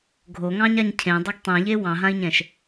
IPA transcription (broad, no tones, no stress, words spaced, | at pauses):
ɡʱoŋɑ̃ɲaɲ cʰẽ dˤoɡtˤɛ̃ʎe wɑ̃ɦãi̯ɲɛ̃ʃ